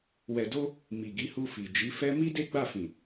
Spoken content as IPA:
wɛ˨do˧ | mi˨ɡi˨˦hu˧ fi˨ d͡ʒi˨˦fɛ˦ mi˦de˦ɡ͡ba˦˨fĩ˨

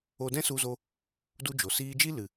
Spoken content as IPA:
o˧dɛ̃˦ su˧zo˧ | du˧d͡ʒo˨siː˧d͡ʒi˦ lɨ˨

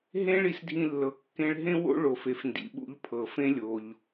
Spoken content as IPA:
ɦẽ˥ɭi˧s dʱĩ˧lːɤ˩ kːẽ˧ɭɦẽ˥wo̰˥ ɭo˩f e˩fndḭ˩ɓṵ˧ʎ pʰɤ˩fẽ˥lʲo˩ʎ

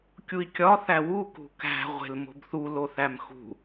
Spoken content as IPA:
kʲui̯kʲɒ θæwu kṳkæ̤ ʁʷe̤lmo̤bθu loθæmxṳ

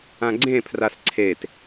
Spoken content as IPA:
ãɡ͡ǀẽ pʰrasǀʰet

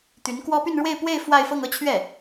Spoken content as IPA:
t̪y˧˥nkwɔ˥ py˥˧nɻwe˥˧ɪ̯pwe˥˧ɪ̯ fwa˥˧ɪ̯fɤ˥˧ŋɤ˥˧t͡ɕʰɥɛ˥˩

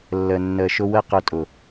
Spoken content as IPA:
lːə˨ nːəː˨ʃʊ˧ wə˦qʊ˧ tʼʊ˨

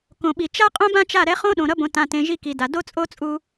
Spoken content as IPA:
kõ˨ɓi˨ t͡ʃa˦ qʼõ˦bã˦t͡ʃa˦˨ɾɛ˦ χõ˦ ɗõ˨ɾʌ˦bõ˨ tã˨tẽ˨ ʒi˦ ki˨da˨ do˦t͡sʼo˦t͡sʼu˦

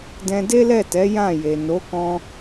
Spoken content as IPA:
dɛ̃˧de˦lɛ˦˨tɛ˨˦ jã˦˨ je˨ no˨˦kɔ̃˧

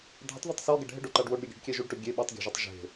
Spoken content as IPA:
dʱɪtˤðitˤ sɔɡɛɖ ɦɪɖoǃaɖ woɖɾʲuɡʲe̤ɖkʲɛ ʒuɖʈʊ ɡʲe ɓutˤɡʲa̤ʒetˤ ʒe̤

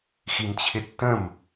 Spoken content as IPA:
ximt͡ɕʰɪtːə̃m

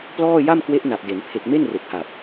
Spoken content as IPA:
plɔː˥˩ ja˥˩mkwe˦˥ʔ na˨˩p̚de˩˦n pʰe˨˩k̚ me˥˩nre˨˩k̚ha˨˩p̚

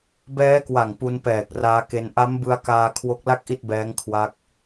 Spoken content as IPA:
bɛː˦˥kwa˨˩ŋ pu˧npɛː˨˩k̚ raː˦˥ke˦˥n ʔa˦˥m bɯ˧a̯kaː˧ kʰwo˦˥k̚la˥˩k̚ ʔi˥˩t̚bɛː˦˥ŋ kʰwa˦˥k̚

